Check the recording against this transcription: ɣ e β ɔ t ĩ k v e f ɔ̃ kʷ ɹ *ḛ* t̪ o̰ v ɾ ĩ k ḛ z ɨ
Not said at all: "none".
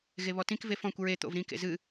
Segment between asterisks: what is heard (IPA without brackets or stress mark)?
e